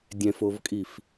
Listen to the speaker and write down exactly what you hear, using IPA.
dʲ ɛ̃ f o v kʼ i f

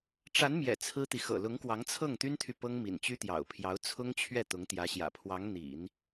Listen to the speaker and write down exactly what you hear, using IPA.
ʈ͡ʂ a˧˥ n m j ɛ̰˨˩ t͡sʰ ɹ̩˥ t̪ i˨ x ɤ̰˨˩ l ʊ˧˥ ŋ k w ɑ˧˥ ŋ t͡sʰ ɤ˥˩ ŋ t̪ y˥ n t̪ʰ y˨ p ɤ˥ ŋ m ḭ˨˩ n t͡ɕ y˥ t̪ j ɑ̰˨˩ ʊ̯ pʰ j ɑ˧˥ ʊ̯ t͡sʰ ʊ˥ ŋ t͡ɕʰ ɥ ɛ˥˩ t̪ ʊ˧˥ ŋ t̪ j ä˧˥ ɕ j ä̰˨˩ pʰ w ɑ˧˥ ŋ n̪ ḭ˨˩˦ n

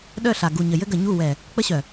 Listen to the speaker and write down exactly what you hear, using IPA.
ɗ œ˦˨ ɬ a˨ ɡ u˨ ɲ ə˨ j ɘ˦ ɡ ə˨ ɲ u˦˨ w ɛ˨ | k͡p ə˦ ɕ œ˨

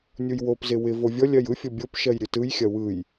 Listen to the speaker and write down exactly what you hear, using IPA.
nʲ u j w o p z ɪ w ɪ v o vʲ ɔ lʲ ɜ j ɯ fʲ ɔ bʲ o p ʃ ɜ j ɾʲ ɯ t ɯ j xʲ ɐ w ɯ j

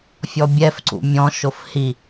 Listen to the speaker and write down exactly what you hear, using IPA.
fʲ ɔ bʲ ɛ f ǀ ṵ mʲ ɔ̃ ʃ o f h i

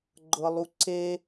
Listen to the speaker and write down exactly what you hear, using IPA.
ɡ͡ǃ ɤ lˠ u ǀ e

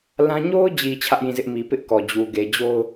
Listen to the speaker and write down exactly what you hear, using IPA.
l ã˦ ɲ o˦ ʊ̯ d͡ʑ i˨ t͡ɕʰ ä˦ ʔ j ĩ˦˨ z ɪ˦ ʔ m i˨ p ɪ˦ ʔ k ɔ˨ d͡ʑ u˨ ɡ e˨ d͡ʑ o˦ ʊ̯

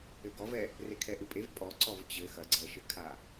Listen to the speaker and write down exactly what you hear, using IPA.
ɘ ɡ ɔ v ɛ | r e kʰ ɛ ʔ ɨ pʼ e v pʼ ɔ ǀ ɔ v t͡ɕ ɘ x ɐ ɡ͡ǀ ɛ ʃ ɘ kʰ a

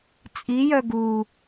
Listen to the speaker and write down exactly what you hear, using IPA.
t͡sʼ i j œ ɡ u

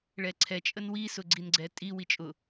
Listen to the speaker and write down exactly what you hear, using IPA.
ɭ ɛ ǀʰ ɛ t͡ʃʼ ə n w i s ʊ ɡ͡ǀ i n ɡ͡ǀ ɛ tʼ i w i t͡ʃʼ ʊ

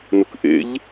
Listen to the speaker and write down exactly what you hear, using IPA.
n ʊ k ʔ ḛ ʎ

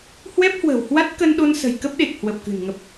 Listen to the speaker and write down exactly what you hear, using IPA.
h w ɛ˦˥ p̚ h w ə̤˨˩ w h w a˦˥ t̚ k ə˧ n ɗ o˧ n s ə̤˨˩ j k ə˦˥ p̚ ɗ e˨˩ k̚ h w ə˨˩ p̚ k ɨ̤˨˩ n ŋ ə˨˩ p̚

